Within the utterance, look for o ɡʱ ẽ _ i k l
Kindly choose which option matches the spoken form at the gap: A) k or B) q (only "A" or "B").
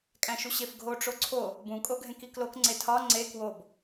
A